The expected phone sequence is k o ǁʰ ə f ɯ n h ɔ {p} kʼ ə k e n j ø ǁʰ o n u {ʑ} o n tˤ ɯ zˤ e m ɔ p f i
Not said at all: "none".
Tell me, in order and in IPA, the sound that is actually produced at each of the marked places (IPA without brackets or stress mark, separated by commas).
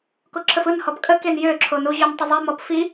p, ʑ